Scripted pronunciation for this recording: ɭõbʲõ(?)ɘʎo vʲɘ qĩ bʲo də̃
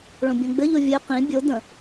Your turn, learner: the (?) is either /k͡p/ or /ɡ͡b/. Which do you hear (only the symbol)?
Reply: ɡ͡b